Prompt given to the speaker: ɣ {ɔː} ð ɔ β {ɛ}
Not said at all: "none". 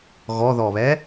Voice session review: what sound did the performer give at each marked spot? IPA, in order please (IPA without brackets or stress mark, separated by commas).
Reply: ɔ, ɛ